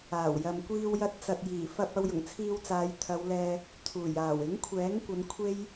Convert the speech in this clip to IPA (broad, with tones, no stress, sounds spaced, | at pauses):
aː˨˩ w j ɐ˨ m kʷ iː˧ w j ɐ˧ t̚ t͡s ɐ˨ t̚ j iː˨˩ f ɐ˧ p̚ ɐ˧ w j ʊ˨˩ ŋ t͡sʰ iː˧ w t͡s aː˨˧ j t̪ʰ ɐ˨˧ w l ɛː˨ | t̪ʰ uː˨˩ j aː˨˩ w ɪ˨˥ ŋ kʷʰ ɛː˨˥ ŋ kʷ ɐ˨˧ n kʷʰ e˥ j